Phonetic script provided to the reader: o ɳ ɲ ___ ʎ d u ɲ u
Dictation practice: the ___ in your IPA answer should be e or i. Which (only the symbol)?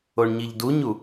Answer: i